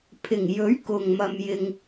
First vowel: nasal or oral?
oral